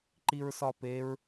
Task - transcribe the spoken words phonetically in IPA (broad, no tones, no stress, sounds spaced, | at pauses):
ǃ i ɹ s ɒ p e ɹ